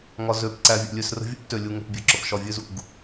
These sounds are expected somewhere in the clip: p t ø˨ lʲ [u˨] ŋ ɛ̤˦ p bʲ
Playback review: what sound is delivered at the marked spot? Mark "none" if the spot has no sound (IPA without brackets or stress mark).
u˦